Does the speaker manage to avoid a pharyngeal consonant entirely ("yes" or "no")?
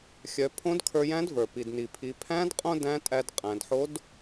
no